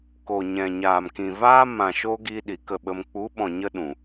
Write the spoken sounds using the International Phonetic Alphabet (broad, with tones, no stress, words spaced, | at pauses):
ko˨ɲɛ̃˨ ɲaː˨mkĩ˨vaː˦ mã˨ʃo˧ ɡi˧ ɗi˨kə˦˨ɓə˧m k͡pu˨˦ɓɔ̃˨ ɲə˦ɗũ˨